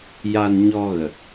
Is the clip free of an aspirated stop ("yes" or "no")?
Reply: yes